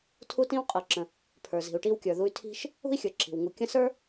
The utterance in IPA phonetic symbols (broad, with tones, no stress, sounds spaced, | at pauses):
tʰ u˦ t ĩ˦ w qʼ ɤ˨ ǁ ə̃˨ | pʰ ə˞˨ z i̤˨ u̯ ʈ i˦ w kʲ ə˞˨ ð u˦ y̯ tʰ i̤˥ ʃ | ṳ˥ i̯ xʲ ə˞˨ ǁ i̤˩ w ŋ u˨ kʲ ə̃˦ s ə˞˥